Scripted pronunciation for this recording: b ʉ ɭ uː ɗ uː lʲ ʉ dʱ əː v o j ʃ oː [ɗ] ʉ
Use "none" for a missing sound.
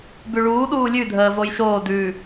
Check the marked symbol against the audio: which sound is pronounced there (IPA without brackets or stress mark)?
d